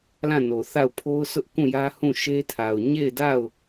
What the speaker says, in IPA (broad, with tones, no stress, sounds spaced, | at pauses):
l ã˦˨ n o˨ θ a˦˨ ʊ̯ pʰ o˦ ʊ̯ sʰ ʊ˦ ʔ k ũ˦˨ j ä˦ h ũ˦˨ ʃ e˦ tʰ a˨ ʊ̯ ɲ e˦˨ ɪ̯ d a˦˨ ʊ̯